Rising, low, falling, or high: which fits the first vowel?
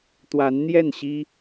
rising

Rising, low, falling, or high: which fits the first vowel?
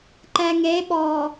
low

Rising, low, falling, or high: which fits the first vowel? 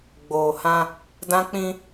low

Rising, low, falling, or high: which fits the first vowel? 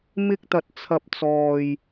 high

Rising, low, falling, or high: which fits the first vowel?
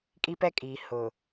high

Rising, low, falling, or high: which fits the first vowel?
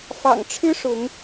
low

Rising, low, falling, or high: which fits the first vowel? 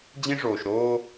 high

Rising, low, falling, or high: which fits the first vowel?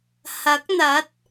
rising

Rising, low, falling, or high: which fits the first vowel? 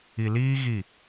low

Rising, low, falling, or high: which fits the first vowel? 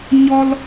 high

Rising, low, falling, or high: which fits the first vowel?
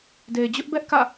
low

